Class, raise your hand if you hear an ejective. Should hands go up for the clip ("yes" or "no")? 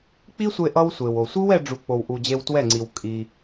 yes